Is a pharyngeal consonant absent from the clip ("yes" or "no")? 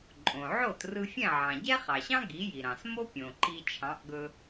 no